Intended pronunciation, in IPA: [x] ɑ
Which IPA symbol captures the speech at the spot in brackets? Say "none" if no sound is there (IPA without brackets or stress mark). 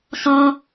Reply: x